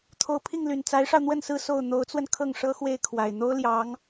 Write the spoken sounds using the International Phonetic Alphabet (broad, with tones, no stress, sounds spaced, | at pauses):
t̪ʰ o˧˥ ʊ̯ pʰ i˥˩ ŋ l y˨˩ n t͡s a˧˥ ɪ̯ ʂ ɑ˧ ʊ̯ n̪ w ə˥˧ n s ɹ̩˥˧ s o˥˩ ʊ̯ n̪ o˧˥ ʊ̯ t͡s w ə˧ n kʰ ɤ˥˩ ŋ ʂ ɤ˥ x w e˥˩ ɪ̯ kʰ w a˨˩ ɪ̯ n̪ o˥ ʊ̯ l j ɑ˧˥ ŋ